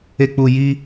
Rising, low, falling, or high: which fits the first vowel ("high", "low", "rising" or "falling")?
high